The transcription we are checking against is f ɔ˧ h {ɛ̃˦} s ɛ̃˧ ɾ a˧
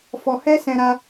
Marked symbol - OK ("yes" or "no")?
no